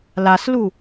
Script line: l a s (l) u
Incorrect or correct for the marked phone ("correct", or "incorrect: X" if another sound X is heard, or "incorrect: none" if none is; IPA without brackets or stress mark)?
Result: correct